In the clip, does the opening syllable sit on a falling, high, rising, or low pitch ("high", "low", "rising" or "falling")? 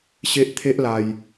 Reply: high